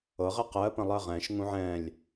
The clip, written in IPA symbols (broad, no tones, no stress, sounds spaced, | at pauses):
ɤ ʁ ɛ q ɜː p ɐ̃ lˠ ɜ ʁ ɛ̃ː ʃ ŋ ũ ʕ ɛ̃ː lʲ